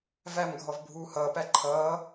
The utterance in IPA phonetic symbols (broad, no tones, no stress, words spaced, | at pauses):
væmɡʱɔv bʱuːhʌːpæ ǃʰʌː